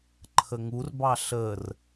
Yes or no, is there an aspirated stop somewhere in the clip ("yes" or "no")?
yes